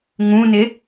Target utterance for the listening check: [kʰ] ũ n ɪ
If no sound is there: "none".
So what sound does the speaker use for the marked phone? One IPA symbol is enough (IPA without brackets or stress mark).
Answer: ŋ